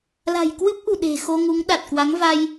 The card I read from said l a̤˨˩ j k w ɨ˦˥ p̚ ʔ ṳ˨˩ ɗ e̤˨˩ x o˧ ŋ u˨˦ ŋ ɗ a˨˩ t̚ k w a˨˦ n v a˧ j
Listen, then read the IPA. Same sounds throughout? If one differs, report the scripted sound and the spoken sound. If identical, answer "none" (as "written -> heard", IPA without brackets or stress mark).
n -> ŋ